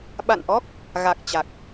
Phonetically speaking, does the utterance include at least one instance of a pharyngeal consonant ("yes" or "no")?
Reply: no